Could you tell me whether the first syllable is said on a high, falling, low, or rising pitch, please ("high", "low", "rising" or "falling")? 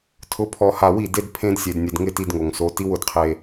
rising